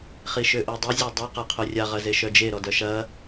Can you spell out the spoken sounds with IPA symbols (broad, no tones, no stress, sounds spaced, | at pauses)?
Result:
χ i ʃ ø ʔ o dˤ ɪ zʲ œ dˤ œ q a qʰ o rʲ a ʁ ɐ z e ʃ œ d͡ʒ e ɾ ɔ d œ ʃ ɐ